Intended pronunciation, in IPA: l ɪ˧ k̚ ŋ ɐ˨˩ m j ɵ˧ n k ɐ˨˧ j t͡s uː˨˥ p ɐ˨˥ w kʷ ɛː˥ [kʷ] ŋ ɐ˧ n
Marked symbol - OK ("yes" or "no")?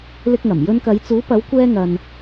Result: no